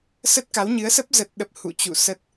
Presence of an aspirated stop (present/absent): absent